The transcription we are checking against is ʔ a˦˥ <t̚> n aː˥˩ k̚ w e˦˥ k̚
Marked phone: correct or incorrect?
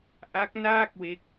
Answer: incorrect